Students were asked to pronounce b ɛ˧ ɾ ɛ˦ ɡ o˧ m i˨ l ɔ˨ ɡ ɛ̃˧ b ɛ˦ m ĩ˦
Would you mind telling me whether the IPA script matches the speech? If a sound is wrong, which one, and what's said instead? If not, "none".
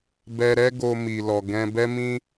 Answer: none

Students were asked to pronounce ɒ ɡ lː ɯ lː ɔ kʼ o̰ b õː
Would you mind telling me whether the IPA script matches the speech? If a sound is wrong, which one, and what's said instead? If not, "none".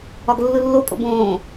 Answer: ɔ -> o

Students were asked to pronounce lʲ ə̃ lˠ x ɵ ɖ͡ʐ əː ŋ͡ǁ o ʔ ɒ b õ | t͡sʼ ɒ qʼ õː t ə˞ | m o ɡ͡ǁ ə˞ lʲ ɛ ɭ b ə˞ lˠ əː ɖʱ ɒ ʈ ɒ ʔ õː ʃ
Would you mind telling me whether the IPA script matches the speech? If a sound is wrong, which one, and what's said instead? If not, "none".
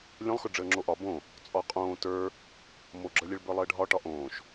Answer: none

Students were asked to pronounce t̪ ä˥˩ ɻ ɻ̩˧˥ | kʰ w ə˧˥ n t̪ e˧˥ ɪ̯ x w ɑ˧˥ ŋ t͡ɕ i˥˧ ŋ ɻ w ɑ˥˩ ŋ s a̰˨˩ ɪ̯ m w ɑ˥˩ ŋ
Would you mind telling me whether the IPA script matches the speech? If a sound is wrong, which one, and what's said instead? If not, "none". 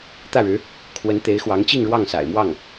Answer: none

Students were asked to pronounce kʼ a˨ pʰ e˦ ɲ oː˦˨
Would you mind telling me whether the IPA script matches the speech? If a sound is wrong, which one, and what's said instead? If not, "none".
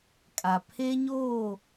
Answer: none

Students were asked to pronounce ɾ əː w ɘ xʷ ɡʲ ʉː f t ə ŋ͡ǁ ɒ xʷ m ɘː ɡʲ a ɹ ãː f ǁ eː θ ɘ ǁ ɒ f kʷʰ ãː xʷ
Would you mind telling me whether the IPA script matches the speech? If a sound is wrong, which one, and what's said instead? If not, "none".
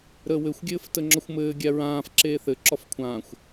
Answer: ʉː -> ɘː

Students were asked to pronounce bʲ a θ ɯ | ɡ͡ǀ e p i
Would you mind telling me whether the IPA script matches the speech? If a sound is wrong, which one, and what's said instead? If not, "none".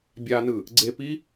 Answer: θ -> n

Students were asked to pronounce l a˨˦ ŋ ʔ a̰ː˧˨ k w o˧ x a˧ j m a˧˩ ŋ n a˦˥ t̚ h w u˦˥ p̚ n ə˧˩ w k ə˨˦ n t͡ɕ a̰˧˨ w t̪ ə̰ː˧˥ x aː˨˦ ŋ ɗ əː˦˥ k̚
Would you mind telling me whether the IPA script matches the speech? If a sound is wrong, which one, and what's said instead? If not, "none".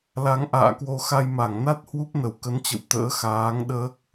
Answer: a̰˧˨ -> ə̰˧˨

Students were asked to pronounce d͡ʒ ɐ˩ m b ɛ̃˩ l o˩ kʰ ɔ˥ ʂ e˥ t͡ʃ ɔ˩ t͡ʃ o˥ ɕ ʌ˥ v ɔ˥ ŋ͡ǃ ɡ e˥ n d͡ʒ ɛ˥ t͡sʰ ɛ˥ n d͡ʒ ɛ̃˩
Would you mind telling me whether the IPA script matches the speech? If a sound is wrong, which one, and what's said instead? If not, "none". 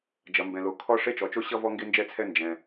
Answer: ŋ͡ǃ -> ŋ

